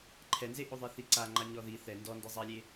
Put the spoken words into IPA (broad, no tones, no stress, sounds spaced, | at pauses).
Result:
ǃʰ ɛ n z e ʔ o ðˤ ɛ θ i ǀ a ŋ͡ǃ a ɲ ɔ ð i θ ɛ n d ɔ n d e zˤ a lʲ e